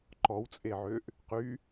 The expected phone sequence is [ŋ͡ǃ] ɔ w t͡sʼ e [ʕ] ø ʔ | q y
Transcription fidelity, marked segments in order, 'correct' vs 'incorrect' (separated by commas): incorrect, correct